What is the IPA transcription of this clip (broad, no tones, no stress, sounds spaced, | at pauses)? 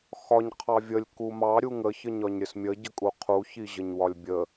x ɒ ɲ qʰ ɑ vʲ ə lʲ k u m ɑ ɾʲ u ŋ ə ç ə ɲ ɒ ɲ ɾʲ ə s mʲ ə ɟ ə kʼ u qʰ u ç i ʑ ə ɲ w ɒ lʲ bʲ ə